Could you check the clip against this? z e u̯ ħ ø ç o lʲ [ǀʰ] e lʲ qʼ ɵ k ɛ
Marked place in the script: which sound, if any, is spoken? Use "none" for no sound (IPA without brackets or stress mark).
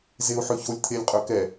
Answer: t̪ʰ